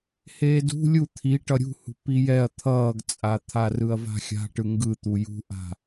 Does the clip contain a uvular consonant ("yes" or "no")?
no